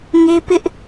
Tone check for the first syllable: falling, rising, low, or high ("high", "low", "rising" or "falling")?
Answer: high